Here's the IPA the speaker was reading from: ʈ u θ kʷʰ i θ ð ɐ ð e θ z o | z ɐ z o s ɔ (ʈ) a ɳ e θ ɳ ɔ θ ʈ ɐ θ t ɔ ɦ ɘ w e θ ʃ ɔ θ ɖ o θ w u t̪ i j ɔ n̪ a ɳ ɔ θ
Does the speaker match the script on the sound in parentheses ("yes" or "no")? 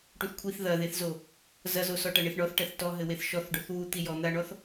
yes